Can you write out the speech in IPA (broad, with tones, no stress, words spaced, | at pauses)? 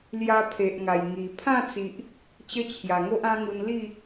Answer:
lja˧ pʰe˨ʔŋa˨˩j ŋi˨˩ pʰã˥˧t͡si˨ʔ | t͡ɕə˦t͡ɕʰja˨˩ŋo˦ʔ ã˦ŋu˧n li˥˧